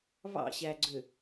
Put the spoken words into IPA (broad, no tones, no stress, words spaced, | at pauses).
βɑ̰ɕæɡ͡ǀø